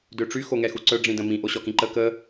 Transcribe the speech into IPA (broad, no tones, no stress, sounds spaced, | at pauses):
d ø ʈ͡ʂ y x o ŋ ɛ x u ǀ œ ɖ͡ʐ ĩ d ə̃ m ĩ ʔ o ɕ ɔ k ĩ ǃ ə k ə